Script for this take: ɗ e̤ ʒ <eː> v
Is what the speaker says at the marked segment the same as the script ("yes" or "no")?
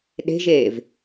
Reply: yes